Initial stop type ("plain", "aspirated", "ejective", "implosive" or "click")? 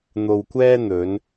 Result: plain